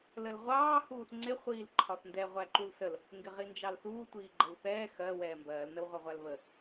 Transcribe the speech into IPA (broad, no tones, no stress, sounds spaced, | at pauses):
l ə l ʁʷ ɑː h uː θ ŋ͡ǀ ɪ χʷ iː l ǃʰ ɒ θ n d ɛ ʁʷ æ ǃ u l s ə l | ŋ ɡ ɪ ʁ i n d͡ʒ ɑ l θ uː tʷ iː ɡ͡ǃ ə w θ ɛː x ɜ w ɛː m b ɜː l n ə w ʁʷ ɜ ʁʷ æ l β ə